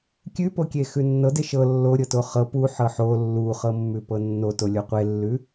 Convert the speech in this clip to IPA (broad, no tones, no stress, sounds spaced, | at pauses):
kʲ ʉ p o kʲ e x ʉ nː ɤ d e ʃ ɤ lː o ɾʲ ɤ t o χ ɤ p u ħ ɤ ħ o lː u χ ɤ mː ʉ p ɤ nː o t o lʲ o qʷ e lː ʉ